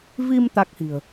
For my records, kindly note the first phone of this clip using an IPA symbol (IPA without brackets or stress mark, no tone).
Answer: v